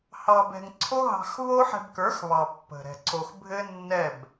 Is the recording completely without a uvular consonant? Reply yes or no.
yes